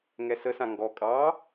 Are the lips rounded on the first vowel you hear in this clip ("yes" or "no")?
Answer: no